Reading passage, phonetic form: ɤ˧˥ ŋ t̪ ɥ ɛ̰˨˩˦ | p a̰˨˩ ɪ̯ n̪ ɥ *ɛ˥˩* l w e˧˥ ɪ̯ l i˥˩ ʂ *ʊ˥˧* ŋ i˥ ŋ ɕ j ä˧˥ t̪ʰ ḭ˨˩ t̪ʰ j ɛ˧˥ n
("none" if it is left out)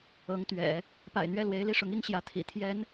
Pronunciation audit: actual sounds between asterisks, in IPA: ɛ˥˩, ʊ˧˥

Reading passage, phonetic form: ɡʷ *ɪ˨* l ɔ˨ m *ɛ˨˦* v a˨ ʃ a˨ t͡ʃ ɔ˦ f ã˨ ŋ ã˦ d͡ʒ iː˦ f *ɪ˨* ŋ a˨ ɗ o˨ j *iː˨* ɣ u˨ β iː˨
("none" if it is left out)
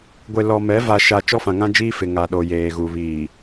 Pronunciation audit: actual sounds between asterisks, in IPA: ɪ˨, ɛ˨˦, ɪ˨, eː˨

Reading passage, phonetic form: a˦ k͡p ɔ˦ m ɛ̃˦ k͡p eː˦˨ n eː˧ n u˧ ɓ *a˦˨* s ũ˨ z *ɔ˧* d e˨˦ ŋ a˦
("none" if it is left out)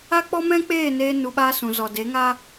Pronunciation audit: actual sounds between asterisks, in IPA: a˦, ɔ˨

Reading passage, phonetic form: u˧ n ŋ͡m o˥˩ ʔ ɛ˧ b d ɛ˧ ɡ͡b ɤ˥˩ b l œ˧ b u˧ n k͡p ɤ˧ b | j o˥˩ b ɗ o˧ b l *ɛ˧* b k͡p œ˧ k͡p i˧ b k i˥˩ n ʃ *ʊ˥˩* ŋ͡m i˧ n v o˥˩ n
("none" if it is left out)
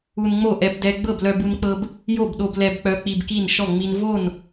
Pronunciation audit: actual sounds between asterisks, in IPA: ɛ˧, ɔ˥˩

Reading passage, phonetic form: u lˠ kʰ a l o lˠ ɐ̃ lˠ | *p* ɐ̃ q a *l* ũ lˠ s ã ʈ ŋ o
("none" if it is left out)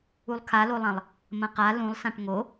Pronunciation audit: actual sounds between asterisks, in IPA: m, l

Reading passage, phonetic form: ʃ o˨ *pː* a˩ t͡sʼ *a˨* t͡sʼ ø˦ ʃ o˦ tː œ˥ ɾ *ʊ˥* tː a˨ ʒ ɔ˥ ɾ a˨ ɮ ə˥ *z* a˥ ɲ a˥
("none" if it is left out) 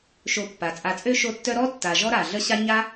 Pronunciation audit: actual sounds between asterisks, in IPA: pː, a˨, ɔ˥, ɕ

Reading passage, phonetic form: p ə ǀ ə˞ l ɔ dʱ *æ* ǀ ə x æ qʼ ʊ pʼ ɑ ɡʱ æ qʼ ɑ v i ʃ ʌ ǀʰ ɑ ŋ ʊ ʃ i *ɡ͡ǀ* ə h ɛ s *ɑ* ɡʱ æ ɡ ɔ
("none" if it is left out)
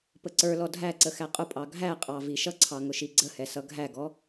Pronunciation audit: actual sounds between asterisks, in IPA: æ, ɡ͡ǀ, ʌ

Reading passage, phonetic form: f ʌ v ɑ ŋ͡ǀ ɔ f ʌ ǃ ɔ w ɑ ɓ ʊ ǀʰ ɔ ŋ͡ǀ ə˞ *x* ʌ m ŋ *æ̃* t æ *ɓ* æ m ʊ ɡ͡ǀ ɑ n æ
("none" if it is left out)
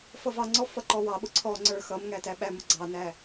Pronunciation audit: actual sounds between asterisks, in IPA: x, æ, ɓ

